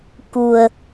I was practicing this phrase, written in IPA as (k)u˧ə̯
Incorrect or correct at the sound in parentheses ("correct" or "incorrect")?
correct